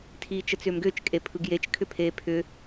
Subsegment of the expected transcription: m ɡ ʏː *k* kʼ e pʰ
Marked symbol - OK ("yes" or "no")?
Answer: no